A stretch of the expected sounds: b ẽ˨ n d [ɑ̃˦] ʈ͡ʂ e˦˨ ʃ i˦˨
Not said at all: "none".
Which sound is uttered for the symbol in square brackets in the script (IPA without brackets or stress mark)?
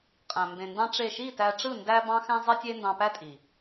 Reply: ɑ̃˧